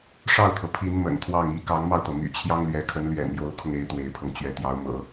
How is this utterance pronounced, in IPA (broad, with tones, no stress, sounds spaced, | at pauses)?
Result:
ʂ ɑ˥˩ ʊ̯ t̪ʰ ɤ˩ pʰ i˧˥ n m ə̰˨˩ n t̪ʰ w ɑ˥˩ ŋ i˧˥ k ɑ˧˥ ŋ m ɑ˧ ʊ̯ t̪ ɤ˩ m y̰˨˩ t͡ɕʰ j ɑ˥ ŋ l ɥ ɛ˧˥ kʰ ə˧˥ n l ɥ ɛ̰˨˩ n j o˧˥ ʊ̯ kʰ ʊ˧ ŋ e˧˥ ɪ̯ t̪ w e˧˥ ɪ̯ pʰ ɤ˧ ŋ t͡ɕ ɥ ɛ˧˥ t̪ j ɑ˧˥ ʊ̯ m ɤ̰˨˩˦